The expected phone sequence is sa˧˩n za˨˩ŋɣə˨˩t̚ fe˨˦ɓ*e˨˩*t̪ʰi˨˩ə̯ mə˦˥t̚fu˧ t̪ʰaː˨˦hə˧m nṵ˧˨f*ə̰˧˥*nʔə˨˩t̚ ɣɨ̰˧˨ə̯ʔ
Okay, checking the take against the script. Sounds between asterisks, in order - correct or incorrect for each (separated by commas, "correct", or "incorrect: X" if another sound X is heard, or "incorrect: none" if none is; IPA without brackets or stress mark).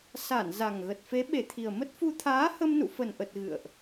correct, incorrect: ə˨˩